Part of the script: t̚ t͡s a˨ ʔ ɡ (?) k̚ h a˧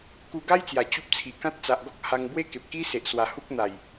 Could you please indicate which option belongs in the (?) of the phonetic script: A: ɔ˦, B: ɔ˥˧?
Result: A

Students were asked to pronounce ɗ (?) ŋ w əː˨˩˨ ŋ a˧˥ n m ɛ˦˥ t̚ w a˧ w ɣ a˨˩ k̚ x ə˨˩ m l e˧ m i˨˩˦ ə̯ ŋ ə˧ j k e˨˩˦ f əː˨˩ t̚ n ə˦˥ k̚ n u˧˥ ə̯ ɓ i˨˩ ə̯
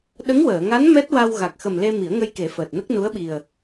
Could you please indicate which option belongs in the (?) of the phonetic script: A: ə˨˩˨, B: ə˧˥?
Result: B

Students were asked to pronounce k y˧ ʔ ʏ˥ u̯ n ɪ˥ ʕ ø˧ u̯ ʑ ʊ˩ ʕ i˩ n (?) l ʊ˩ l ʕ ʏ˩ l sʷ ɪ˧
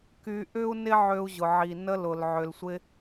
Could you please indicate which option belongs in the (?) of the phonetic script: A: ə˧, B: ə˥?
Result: A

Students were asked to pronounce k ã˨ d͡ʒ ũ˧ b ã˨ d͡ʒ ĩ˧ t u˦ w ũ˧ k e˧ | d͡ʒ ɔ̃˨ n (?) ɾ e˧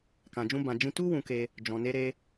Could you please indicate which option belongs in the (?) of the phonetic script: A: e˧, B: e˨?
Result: A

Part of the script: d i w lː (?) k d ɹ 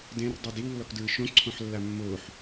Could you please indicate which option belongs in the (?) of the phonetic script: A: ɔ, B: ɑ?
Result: A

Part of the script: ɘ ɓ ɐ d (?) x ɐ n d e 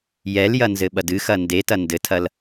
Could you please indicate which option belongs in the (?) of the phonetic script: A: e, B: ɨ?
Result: B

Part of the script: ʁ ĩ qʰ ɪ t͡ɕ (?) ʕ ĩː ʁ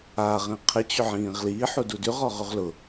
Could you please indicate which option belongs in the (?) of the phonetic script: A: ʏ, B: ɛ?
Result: A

